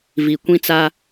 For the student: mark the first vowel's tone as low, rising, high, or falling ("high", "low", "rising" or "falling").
low